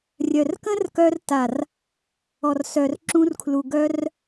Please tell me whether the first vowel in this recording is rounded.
yes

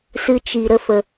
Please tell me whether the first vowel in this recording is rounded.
no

